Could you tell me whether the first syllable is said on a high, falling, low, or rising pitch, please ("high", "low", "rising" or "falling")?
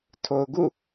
low